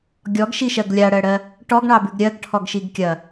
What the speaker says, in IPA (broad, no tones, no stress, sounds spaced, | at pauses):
ɡʲ ɔ ɡ ʃ i ʃ ɜ ɡ lʲ a ɽ ɜ ɽ ɜ | ʈ ɔ ɡ ɳ ɑ b ʉ ɡ ɾʲ ɜ ɡ ʈʰ ɔ ɡ ʃ i ɡ kʲ ɐ